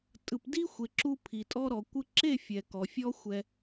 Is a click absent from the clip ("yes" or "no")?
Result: no